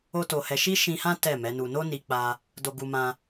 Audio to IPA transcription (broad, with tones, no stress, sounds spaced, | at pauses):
o˦ t o˧ h ɛ˧ ʃ i˦ ʃ ĩ˧ h ã˦ t ɛ˦˨ m ɛ˨˦ n u˧ n o˦ n i˧ k͡p a˧ | d o˧ ɡ u˧ m ã˧